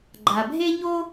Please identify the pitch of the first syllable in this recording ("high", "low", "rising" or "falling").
low